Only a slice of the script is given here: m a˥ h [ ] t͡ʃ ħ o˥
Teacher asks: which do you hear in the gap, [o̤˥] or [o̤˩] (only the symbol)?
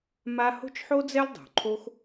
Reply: o̤˥